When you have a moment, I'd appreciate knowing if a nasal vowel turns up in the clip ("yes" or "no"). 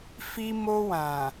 yes